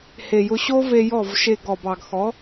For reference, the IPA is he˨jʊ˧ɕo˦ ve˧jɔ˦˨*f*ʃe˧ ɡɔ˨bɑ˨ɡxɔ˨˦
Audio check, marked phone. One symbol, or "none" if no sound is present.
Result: v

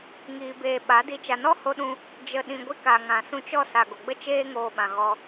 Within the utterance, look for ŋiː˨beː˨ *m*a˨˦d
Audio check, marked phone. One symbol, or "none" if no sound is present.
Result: ɓ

